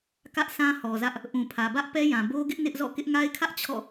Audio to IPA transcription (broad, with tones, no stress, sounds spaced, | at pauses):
k ä˦ ʔ s ã˦ h ɔ˨ z ä˦ ʔ | ʔ ũ˨ pʰ ä˨ b ä˦ ʔ p ɛ˦ j ã˨ b o˦ ɡ ɪ˦ ʔ n ɪ˦ ʔ z ɔ̰˦˨ k ɪ˦ ʔ ŋ a˦ ɪ̯ kʰ ä˦ ʔ t͡ɕʰ ɔ̰˦˨